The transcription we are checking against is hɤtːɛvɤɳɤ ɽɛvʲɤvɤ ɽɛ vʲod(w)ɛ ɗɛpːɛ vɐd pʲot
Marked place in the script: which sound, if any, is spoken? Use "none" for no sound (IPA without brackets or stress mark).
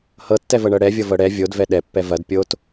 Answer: v